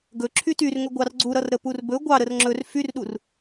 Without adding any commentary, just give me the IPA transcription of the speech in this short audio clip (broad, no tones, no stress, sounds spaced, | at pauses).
ɡ ɵ ǁʰ y t y r ŋ ɵ ɡʷ ɑ r ɡ͡ǀ u ɾ ʌ r ɾ ə p u r b ɵ ɡʷ ɑ ɾ ə r ŋ͡ǁ ɵ r f y r ɗ u r